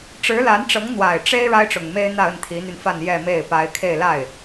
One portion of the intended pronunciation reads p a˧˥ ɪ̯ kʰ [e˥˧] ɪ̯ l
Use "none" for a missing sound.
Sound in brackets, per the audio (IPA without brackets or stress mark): e˥˧